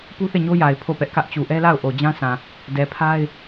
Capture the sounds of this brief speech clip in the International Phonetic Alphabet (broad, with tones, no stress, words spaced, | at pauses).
pu˦θe˦˨ɲo˦ja˨ɪ̯ pʰo˦˨pɛ˦ʔkä˦ʔ t͡ɕu˨ʔɛ˦la˦˨ʊ̯ ʔo˨d͡ʑã˦sʰã˨ | dɛ˨pʰa˦ɪ̯